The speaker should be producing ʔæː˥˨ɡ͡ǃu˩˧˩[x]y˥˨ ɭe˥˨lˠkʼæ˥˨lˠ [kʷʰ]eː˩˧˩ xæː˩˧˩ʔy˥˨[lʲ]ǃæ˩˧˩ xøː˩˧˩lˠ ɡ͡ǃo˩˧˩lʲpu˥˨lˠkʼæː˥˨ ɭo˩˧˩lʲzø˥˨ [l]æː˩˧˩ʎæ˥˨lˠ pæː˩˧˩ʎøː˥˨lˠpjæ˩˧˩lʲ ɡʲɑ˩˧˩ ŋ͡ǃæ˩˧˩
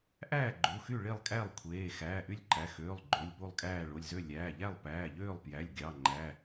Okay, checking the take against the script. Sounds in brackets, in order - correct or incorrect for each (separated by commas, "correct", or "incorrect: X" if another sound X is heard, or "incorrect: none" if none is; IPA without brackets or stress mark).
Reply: correct, correct, correct, incorrect: lʲ